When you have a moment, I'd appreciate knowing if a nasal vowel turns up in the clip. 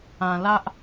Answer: yes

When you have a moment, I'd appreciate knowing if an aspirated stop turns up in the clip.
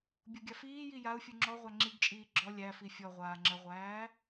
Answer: no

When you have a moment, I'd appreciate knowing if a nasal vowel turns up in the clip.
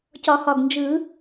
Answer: no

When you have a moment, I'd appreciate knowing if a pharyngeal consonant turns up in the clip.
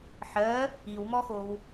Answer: yes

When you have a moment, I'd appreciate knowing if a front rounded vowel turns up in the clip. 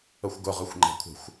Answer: no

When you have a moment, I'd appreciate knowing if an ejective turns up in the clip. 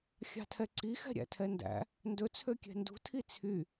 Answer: no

